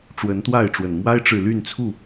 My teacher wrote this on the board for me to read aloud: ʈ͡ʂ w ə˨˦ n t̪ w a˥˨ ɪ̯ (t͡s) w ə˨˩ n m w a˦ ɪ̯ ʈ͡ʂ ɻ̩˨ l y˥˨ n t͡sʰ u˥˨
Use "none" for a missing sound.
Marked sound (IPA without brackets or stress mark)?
ʈ͡ʂ